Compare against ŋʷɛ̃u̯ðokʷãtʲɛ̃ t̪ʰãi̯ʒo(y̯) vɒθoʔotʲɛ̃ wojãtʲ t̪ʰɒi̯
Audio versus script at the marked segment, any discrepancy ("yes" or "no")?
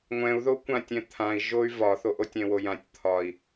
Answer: no